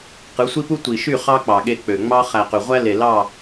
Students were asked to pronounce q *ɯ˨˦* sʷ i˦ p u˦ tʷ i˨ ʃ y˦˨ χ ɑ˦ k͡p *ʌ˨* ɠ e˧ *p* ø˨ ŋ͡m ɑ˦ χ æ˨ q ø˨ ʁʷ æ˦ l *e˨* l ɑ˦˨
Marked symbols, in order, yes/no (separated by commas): yes, no, no, yes